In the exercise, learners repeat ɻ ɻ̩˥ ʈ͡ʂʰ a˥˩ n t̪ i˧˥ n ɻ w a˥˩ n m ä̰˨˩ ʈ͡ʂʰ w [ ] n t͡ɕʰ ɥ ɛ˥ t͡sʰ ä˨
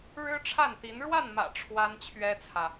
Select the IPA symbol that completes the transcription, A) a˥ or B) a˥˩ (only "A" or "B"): A